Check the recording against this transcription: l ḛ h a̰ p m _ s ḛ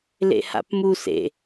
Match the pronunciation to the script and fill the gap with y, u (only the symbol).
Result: u